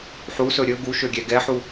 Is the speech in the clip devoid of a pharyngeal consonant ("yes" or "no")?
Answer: no